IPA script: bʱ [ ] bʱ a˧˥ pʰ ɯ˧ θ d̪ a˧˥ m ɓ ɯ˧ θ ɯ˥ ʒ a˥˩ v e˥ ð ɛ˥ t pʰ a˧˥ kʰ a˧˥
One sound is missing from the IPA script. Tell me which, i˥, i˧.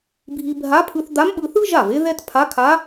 i˧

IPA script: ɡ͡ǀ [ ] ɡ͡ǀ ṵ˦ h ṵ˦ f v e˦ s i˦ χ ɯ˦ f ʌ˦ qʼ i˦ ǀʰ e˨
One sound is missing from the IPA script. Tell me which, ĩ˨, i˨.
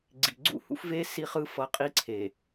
i˨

